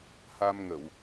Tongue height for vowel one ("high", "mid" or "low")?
low